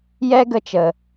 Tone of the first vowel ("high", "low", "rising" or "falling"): high